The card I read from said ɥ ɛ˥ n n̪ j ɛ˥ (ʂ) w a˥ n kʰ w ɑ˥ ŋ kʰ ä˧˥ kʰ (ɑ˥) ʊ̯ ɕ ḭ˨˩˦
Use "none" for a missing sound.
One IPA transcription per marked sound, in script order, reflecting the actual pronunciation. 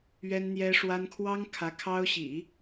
ʂ, ɑ˥

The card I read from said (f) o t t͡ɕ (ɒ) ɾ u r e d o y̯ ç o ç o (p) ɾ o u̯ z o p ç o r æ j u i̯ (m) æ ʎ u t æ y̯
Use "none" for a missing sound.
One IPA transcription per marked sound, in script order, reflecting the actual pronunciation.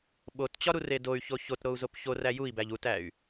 ɓ, ɒ, t, b

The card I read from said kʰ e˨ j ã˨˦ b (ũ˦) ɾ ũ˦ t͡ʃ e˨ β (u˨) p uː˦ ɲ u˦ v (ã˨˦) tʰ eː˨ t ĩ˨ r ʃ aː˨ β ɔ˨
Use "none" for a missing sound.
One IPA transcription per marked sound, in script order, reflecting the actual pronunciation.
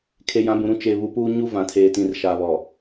ũ˨, u˨, ã˨

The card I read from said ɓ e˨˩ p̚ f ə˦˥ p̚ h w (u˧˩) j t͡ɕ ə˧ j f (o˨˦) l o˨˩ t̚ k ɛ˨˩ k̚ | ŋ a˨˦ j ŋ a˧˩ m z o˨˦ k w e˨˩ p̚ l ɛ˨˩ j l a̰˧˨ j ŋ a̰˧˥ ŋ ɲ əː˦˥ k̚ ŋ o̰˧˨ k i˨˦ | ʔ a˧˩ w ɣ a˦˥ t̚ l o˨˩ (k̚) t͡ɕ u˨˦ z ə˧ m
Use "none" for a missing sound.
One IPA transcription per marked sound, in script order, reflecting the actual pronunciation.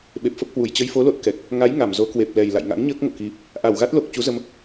u˧˩, o˨˦, k̚

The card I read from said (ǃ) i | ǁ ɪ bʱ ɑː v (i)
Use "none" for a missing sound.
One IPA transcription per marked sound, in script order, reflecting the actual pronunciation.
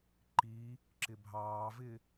ǃ, ɪ

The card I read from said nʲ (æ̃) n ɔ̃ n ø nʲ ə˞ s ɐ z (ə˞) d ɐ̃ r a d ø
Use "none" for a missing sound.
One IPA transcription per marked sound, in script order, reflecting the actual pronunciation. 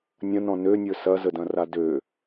ɐ̃, ə

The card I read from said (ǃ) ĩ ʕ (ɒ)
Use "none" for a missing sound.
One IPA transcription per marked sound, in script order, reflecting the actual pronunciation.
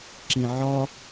ǁ, ɒ

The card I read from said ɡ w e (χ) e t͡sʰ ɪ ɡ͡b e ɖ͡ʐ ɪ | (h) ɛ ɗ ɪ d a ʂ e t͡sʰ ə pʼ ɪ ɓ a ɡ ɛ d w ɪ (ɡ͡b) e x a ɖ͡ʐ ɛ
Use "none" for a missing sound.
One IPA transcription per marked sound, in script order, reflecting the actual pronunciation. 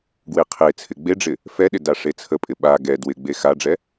qʰ, f, ɡ͡b

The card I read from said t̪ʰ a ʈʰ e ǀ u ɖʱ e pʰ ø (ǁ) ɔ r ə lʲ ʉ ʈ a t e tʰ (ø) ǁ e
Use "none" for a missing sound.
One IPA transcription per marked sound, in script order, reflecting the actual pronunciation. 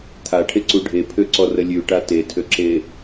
ǀ, ø

